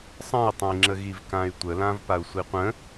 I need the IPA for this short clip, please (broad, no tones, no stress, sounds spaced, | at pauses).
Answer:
sˤ ə̃ i̯ tˤ ə̃ i̯ ŋ͡ǁ ə ɣ i v k ã y̯ tʷ ə l ã v p a u̯ sʷ i qʷ ə̃